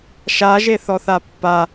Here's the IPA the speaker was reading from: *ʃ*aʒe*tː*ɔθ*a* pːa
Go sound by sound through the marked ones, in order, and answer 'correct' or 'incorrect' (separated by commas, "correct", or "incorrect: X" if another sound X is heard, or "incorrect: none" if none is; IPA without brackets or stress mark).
correct, incorrect: θ, correct